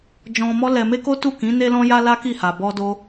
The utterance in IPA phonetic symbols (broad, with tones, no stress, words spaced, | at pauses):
d͡ʒɔ̃˧mɔ˦ lɛ˧ me˦ko˦ tu˦˨kĩ˨˦ ne˧lɔ̃˧ja˧ la˦ki˦˨ha˨ bɔ˧do˧